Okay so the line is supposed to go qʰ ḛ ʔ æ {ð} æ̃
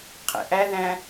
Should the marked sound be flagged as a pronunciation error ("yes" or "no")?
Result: no